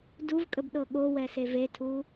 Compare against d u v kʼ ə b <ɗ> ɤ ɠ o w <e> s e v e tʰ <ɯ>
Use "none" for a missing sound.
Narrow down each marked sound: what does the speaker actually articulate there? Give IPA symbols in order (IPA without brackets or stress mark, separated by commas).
ɗ, ɛ, u